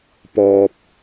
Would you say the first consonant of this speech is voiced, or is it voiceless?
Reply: voiceless